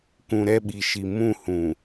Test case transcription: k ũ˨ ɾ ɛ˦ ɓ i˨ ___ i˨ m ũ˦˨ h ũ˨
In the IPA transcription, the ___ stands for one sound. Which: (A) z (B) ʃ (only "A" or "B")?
B